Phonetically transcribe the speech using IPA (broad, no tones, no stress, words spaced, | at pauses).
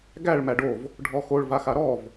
ɡæɭ mæɖov | ɖʱɔxoɭ vaxaɾɔv